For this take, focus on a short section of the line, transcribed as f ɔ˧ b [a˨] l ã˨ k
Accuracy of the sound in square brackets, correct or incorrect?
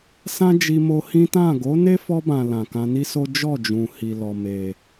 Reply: incorrect